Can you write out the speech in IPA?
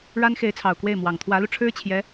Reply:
ɻa˥nxe˧˥ɪ̯t͡sʰɑ˨˩ʊ̯ kwe˥˩ɪ̯mwɑ˨˩ŋ t̪ʰwä˧˥lu˧ ʈ͡ʂʰɻ̩˥t͡ɕʰjɛ˧˥

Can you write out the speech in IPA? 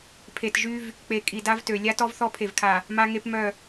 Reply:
pʰe˨tʒy˦v | k͡pe˨kʼi˨ da˦vtø˨ lʲa˦tɔ˦v θɔ˦pʰe˨vkʰa˨ | ma˦ŋe˦pmœ˦˨

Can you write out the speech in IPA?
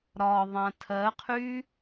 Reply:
ɾɒ ðˤãtʰɜqʰy

